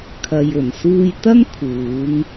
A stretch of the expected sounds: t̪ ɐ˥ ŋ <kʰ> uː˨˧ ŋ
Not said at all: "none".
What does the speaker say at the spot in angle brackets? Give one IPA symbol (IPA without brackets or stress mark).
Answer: kʰ